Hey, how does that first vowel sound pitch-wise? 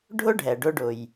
high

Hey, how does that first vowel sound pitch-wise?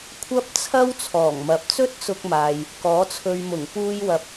high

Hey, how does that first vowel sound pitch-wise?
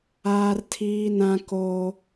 high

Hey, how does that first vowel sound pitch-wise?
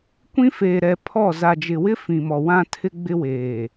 high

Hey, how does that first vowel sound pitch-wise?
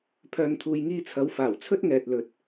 low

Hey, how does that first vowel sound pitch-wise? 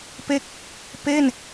falling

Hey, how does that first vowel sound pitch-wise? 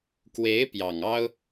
rising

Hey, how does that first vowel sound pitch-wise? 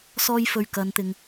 high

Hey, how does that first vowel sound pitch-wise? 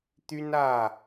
high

